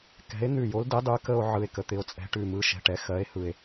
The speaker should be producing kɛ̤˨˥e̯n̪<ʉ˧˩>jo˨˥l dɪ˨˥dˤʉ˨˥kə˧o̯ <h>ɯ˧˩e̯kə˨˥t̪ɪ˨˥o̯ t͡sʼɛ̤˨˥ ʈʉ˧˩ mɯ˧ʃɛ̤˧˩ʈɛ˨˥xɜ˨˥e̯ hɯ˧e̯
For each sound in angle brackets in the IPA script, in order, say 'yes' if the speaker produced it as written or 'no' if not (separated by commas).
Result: yes, no